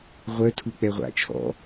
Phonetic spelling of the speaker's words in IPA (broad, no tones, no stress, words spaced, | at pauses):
ʁʷœ tʰuk͡pɛʁʷa̰ t͡ʃʰɔ̰